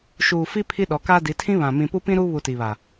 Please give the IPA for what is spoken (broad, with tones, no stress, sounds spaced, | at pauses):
ʃ uː˨ f i˦ pʰ i˦ ɗ ɔ˨˦ k aː˦ d i˨˦ tʰ ĩ˦ β ã˨ m ĩ˨ p u˦ p ĩ˦ ɾ uː˦ β u˨ t i˨ β a˨